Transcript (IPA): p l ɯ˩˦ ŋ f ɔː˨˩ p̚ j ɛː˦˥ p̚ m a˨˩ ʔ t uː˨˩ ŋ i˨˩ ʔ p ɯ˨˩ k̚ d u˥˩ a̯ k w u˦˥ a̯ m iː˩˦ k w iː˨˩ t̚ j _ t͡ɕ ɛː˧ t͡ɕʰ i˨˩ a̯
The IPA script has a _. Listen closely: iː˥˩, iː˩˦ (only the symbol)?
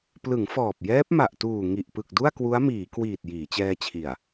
iː˩˦